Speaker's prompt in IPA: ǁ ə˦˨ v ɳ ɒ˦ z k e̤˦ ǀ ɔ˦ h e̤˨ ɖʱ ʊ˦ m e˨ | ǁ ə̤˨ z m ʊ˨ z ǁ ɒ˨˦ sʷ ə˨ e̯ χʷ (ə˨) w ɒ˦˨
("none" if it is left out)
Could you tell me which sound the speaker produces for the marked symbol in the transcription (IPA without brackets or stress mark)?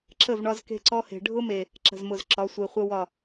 ə˦